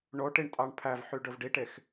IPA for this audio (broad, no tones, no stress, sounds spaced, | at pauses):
ɳ o ʈ i ɳ tʼ ɑ ɳ pʰ æ v ħ y ɖ ɵ v ɖ i ʈ e x